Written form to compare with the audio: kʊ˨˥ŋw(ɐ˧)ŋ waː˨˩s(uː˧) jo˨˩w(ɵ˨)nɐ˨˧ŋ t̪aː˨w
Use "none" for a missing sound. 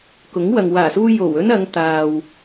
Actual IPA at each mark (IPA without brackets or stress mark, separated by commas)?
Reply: ɐ˨, uː˧, ɵ˥